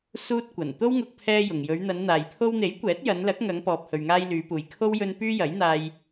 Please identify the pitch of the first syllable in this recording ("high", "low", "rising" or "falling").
high